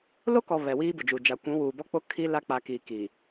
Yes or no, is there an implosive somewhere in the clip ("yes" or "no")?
no